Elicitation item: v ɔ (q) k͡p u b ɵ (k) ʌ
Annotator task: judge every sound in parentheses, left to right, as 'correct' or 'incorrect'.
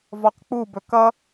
correct, correct

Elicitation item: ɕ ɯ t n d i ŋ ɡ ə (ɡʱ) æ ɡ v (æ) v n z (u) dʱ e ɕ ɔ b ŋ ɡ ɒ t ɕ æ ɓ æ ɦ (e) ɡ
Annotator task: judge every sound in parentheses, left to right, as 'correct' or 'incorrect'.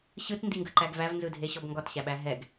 incorrect: ǃ, correct, incorrect: ɯ, incorrect: ɛ

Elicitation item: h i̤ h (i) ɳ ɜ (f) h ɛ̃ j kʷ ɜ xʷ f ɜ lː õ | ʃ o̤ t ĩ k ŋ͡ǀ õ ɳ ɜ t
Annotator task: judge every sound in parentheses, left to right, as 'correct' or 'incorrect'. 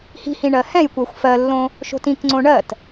incorrect: ĩ, incorrect: none

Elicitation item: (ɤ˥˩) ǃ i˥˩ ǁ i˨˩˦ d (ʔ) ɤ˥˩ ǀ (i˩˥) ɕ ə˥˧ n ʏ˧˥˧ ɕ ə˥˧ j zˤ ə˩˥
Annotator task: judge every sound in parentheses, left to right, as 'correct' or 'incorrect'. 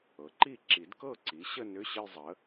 incorrect: ɤ˩˥, incorrect: k, correct

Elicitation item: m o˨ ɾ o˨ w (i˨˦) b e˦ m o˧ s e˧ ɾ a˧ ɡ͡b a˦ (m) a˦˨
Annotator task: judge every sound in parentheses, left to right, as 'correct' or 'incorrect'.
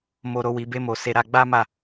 correct, correct

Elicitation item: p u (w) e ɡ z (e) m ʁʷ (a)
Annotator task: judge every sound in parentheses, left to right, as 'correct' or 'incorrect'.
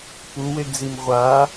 correct, incorrect: i, correct

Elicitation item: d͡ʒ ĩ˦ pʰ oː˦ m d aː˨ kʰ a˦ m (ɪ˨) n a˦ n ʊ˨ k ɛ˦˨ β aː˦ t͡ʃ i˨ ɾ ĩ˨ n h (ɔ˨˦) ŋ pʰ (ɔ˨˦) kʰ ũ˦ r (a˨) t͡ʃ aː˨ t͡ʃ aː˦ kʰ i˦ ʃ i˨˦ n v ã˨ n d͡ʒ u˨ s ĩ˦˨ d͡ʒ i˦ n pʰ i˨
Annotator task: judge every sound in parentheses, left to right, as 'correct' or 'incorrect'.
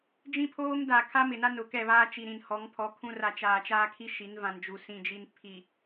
correct, correct, correct, correct

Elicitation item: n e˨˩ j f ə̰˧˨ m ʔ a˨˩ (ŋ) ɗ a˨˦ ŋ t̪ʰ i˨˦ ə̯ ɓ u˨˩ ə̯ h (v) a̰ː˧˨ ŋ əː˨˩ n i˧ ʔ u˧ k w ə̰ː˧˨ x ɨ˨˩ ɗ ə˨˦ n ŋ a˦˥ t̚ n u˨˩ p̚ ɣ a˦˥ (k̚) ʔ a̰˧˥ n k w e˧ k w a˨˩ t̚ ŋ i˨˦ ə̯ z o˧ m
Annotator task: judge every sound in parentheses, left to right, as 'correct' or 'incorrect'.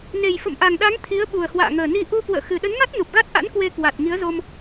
correct, incorrect: w, incorrect: t̚

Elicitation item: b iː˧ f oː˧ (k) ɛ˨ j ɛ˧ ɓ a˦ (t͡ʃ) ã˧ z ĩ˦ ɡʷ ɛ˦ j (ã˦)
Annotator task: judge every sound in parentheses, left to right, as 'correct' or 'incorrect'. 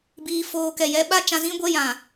correct, correct, incorrect: ã˨

